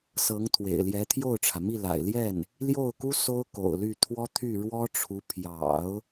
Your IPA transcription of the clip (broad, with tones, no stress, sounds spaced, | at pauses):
s ɤ˧˥ ŋ t̪ʰ w ḛ˨˩ ɪ̯ l j ɛ˧˥ t̪ʰ j o˥˩ ʊ̯ ʈ͡ʂʰ ä˩ m i˥˩ l a̰˨˩ ɪ̯ l j ɛ˥˩ n | l j o˥˩ ʊ̯ k u˥ s o˥ ʊ̯ k o̰˨˩ ʊ̯ l y˥˩ t̪ʰ w ɔ˥ t̪ʰ y˥˩ ɻ w ɔ˥ ʈ͡ʂʰ u˧˥ pʰ j ɑ̰˨˩˦ ʊ̯